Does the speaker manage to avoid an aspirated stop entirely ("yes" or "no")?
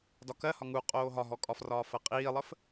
yes